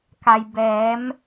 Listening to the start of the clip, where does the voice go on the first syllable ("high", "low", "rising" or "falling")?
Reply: low